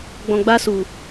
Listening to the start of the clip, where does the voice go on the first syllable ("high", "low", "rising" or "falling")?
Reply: low